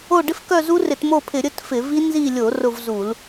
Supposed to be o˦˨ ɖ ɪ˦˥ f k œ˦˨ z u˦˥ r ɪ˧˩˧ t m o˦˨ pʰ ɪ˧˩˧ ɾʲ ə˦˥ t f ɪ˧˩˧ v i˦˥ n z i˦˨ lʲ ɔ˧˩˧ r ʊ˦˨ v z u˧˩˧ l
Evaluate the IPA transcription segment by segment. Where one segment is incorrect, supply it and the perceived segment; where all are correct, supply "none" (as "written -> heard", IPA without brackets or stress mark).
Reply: ɔ˧˩˧ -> o˧˩˧